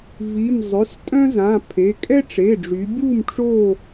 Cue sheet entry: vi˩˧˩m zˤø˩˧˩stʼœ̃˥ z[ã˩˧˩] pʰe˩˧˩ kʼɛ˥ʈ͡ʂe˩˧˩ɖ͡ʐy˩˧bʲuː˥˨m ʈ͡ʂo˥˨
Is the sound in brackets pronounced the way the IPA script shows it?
yes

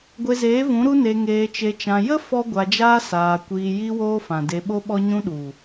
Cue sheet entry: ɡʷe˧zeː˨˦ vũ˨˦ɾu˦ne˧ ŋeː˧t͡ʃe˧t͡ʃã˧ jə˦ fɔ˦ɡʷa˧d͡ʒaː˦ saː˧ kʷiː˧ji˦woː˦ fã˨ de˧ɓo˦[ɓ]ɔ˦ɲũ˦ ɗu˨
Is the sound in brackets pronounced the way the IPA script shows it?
yes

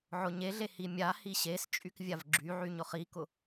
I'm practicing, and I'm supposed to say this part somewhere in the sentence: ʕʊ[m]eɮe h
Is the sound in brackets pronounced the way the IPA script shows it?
no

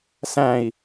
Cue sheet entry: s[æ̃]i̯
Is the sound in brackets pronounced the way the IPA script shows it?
yes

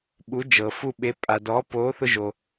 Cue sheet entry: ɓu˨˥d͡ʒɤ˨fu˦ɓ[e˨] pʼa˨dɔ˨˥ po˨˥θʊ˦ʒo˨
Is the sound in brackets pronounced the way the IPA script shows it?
no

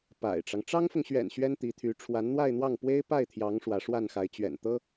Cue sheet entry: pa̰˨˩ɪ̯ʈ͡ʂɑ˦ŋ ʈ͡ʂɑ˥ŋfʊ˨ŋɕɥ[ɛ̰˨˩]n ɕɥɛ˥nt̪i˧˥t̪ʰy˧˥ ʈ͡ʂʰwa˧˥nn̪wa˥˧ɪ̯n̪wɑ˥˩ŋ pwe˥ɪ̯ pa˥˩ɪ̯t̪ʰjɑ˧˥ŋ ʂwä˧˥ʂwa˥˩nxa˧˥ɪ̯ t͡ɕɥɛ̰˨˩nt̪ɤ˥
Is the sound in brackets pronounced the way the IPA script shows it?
yes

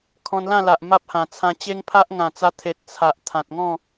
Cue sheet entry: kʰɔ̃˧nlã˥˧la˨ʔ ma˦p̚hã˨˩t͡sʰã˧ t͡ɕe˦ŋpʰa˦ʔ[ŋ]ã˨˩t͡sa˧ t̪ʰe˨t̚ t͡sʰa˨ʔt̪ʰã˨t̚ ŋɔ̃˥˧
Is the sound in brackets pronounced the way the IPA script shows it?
yes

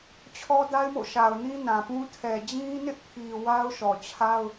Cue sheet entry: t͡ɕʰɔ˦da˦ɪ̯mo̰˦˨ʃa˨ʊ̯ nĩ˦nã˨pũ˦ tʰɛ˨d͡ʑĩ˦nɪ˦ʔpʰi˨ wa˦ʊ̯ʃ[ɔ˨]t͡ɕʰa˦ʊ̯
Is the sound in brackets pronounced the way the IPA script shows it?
yes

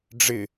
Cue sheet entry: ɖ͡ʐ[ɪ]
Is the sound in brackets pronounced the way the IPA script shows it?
yes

